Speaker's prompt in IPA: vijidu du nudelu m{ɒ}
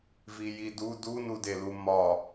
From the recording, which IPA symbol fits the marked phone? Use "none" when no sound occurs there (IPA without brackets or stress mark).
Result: ɒ